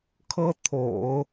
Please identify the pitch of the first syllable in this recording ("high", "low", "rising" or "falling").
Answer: high